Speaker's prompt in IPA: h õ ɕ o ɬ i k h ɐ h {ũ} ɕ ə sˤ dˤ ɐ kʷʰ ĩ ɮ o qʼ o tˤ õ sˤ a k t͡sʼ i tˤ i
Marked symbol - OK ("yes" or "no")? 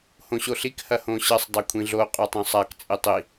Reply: no